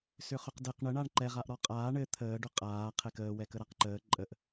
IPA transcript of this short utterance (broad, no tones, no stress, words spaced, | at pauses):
sʏχʏqdɘq ɳə ɳaɳǃɛ ʁaʔɾɔqʼaː ɳɘ t̪ʰəːɖʏ qʼaː qʰɛkəːwɛkə ɾaqǃəː ǃʼəʔ